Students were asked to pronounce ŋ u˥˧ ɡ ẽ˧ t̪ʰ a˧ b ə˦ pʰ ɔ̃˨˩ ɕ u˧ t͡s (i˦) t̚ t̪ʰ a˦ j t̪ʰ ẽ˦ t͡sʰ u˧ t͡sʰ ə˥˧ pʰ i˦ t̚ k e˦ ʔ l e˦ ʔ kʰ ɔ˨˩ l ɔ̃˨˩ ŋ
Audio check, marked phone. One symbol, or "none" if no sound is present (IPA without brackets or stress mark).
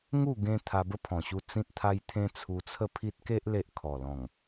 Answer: ĩ˦